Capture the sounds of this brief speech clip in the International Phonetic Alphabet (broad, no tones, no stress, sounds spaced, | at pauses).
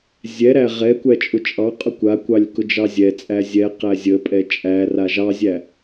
zʲ ɛ ɾ æ ʁ ɛ kʷ æ t͡ʃʼ ʊ t͡ʃʼ ɑ qʼ ʊ kʷ a kʷ ɑ lʲ k ʊ d͡ʒ ɑ zʲ ɛ t͡sʼ æ zʲ ɛ q æ zʲ ə pʼ ɛ t͡ʃʼ æ r a ʒ ɑ zʲ æ